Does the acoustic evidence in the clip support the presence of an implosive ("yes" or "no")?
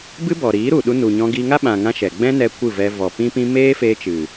yes